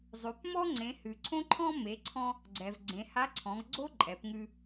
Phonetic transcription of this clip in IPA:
zˤ ʉ˩˧ p m ɔ˥ ŋ͡ǀ ẽ˩˧ h ʉ˩ ǀʰ õ˥ ǃʰ ɔ̃˥ m e˩˧ ǀʰ ɔ̃˧ | ɡ͡ǀ ɛ˩ v ɡ͡ǀ ẽ˩˧ h a˧˥ ǀʰ ɔ̃˩˧ ɡ ɡ͡ǀ o˥ ǃʼ ɛ˩˧ p ŋ ʉ˧

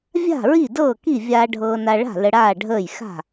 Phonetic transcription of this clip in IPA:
vʲ a̤˥˩ ɹ i˥˩ d ɤː˥˩ k i˥˩ vʲ aː˧ ɖʱ ɤː˧ n a˧ ɭ a̤˥˩ l ə˧ ɽ aː˥˩ ɖʱ əː˥˩ j x a̤˥˩

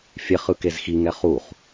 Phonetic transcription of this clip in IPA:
fʲ e χ ɯ k e z x i ŋ ɛ χ u χ

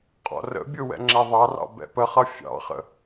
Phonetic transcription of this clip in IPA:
qʼ ɔ̰ r ə̰ bʲ ʊ w ɛ̰ ŋ͡ǁ ɛ ðˤ ɑ r ɑ̰ b ɛ̰ p ə χ ʌ fʲ ɑ̰ χ ə̰

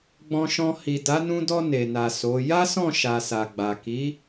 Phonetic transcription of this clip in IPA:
ɡ͡b ɔ̃˧ ʃ ɔ̃˧ h i˨ d a˨˦ n ũ˧ d ɔ˧ n e˨ n a˨ s o˨˦ j a˦ s ɔ̃˦˨ ʃ a˨ s a˨ ɡ͡b a˨ k i˨˦

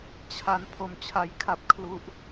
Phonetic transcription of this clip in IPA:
t͡ɕʰ a˦˥ n pʰ o˧ m t͡ɕʰ a˧ j kʰ a˦˥ p̚ kʰ l u˦˥ ʔ

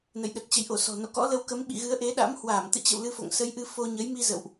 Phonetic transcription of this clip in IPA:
n ə̰˧˨ j ɗ ə˨˩ t̚ t͡ɕ ə̰˧˨ j ʔ o˧˩ s ɔ̤˨˩ n o̰˧˨ k ɔ̰˧˥ l ə˧ w k ə˨˦ m ɓ ḭ˧˨ ɣ ɨ˨˦ ə̯ ʔ e˨˦ ɗ a̰˧˥ m h w aː˧˩ m t̪ ɨ̰˧˨ t͡ɕ ə̰˧˨ w l ɨ˧ f o̰˧˨ ŋ s ə˨˦ j ʔ ɨ˧ f o˧ ɲ ə˨˦ j m i˧ z ə̰˧˨ w ʔ

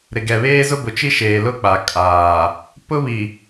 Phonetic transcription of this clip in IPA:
ɾ ɪ˨ ɡ ɛ˨ β eː˦ z ʊ˦ b ʊ˨ t͡ʃ i˦ ʃ eː˨ l ʊ˦˨ k͡p a˨ kʼ aː˨ | p ʊ˦ β i˨

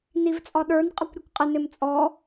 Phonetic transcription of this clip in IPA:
n i v t͡sʼ ɒ ɗ ə˞ n qʼ ə kʷ ɾʲ u kʷ qʼ ɪ n ɪ m t͡sʼ ɔ

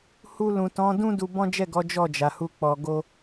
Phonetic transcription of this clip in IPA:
h u˧ l ũ˨ t ɔ̃˨˦ d ũ˦ d u˧ b ɔ̃˦ d͡ʒ ɛ˦˨ ɡ ɔ˨˦ d͡ʒ ɔ˦˨ d͡ʒ a˨ h u˧ k͡p ɔ˨ ɡ o˧

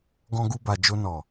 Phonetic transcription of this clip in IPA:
ɡ ɔ̃˧ ɡ u˧ b a˨ d͡ʒ o˧ n ɔ˨

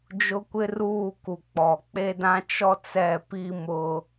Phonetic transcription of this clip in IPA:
d͡ʒ ʊ˦ kʷ ɪ˦ r uː˦˨ k u˨ k͡p ɔ˨ k͡p e˦ d ã˦ t͡ʃ ɔ˦ t͡s ɛ˦˨ p i˦ m ʊ˦

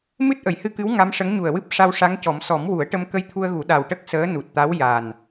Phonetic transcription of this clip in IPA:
m ɨ˦˥ t̚ ʔ ə˨˩ j h ɨ˧ k ɨ˧˥ w ŋ a˧˥ m ʂ ə˧˥ ŋ ɲ u˨˩ ə̯ w ɨ˦˥ p̚ ʂ a˧ w ʂ a˧˥ ŋ c ɔ˨˩˦ m s ɔ˨˩˦ m w u˨˩˦ ə̯ ʈ ə˧ m k ə˧ j t̪ʰ u˧ ə̯ ɣ u˨˩˦ ɗ a˨˩ w ʈ ə˦˥ k̚ s əː˧˥ n u˨˩ t̚ t̪ a˧˥ w j a˨˩ n

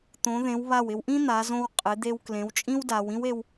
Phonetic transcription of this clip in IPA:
t̪ õ˩˧ ð ẽ˩˧ w β a˧˩ w ɪ˧ w ʔ ĩ˥ n̪ a˩˧ z õ˧ w qʼ ɪ˩˧ d̪ e˧ w k l ẽ˩˧ w t͡ʃʼ ĩ˥ w d a˩˧ w ĩ˥ w e˧ w

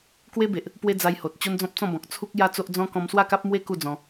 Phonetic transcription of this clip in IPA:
k w e˦ b e˨ ʔ | p w e˦ d͡z a˧ j h o˨ t̚ t͡ɕ o˦ n d͡z ɔ̃˦ p̚ t͡s ɔ̃˥˧ b ɔ̃˨ k̚ t͡sʰ u˦ k̚ j a˦ t͡s o˦ ʔ d͡z ɔ̃˦ k ɔ̃˧ m s w a˥˧ k a˦ p̚ m w e˦ k u˥˧ d͡z ɔ̃˧

